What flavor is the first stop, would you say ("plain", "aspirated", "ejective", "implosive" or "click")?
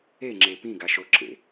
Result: click